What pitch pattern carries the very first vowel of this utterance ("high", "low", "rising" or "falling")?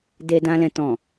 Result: low